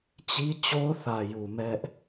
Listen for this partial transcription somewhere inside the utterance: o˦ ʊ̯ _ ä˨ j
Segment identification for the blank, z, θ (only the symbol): θ